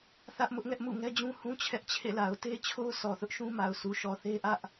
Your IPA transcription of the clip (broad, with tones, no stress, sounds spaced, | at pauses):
θ ä˦ ʔ m ʊ˦ ʔ ŋ ɛ˦ ʔ m ṵ˦˨ ŋ ɛ˦ d͡ʑ ũ˦ h ũ˦ t͡ɕʰ ɛ˦ ʔ t͡ɕʰ ḛ˦˨ l a˨ ʊ̯ t e˦ t͡ɕʰ o˦ ʊ̯ s ɔ˨ θ ʊ˦ ʔ ʃ ũ˦ m a˨ ʊ̯ s u˨ ʃ ɔ˨ θ e˦ ʔ ä˦ ʔ